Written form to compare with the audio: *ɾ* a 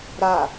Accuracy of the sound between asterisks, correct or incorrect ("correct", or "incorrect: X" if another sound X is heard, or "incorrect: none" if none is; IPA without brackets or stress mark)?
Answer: correct